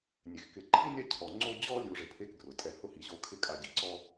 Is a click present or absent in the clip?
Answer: present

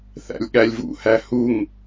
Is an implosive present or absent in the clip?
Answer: present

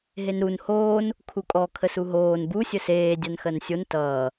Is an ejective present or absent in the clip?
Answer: present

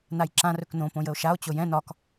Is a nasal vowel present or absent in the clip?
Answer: present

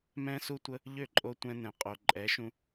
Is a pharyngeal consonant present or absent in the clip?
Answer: absent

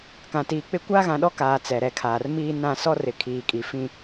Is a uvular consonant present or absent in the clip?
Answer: absent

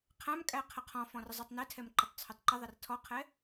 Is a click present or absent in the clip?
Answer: present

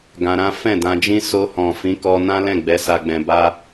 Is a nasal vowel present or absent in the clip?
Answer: present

